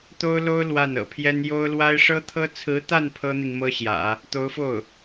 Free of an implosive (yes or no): yes